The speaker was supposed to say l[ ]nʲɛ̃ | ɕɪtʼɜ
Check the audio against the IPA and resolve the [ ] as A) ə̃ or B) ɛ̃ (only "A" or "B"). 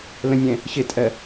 A